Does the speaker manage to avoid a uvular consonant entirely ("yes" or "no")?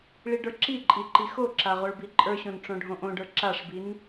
no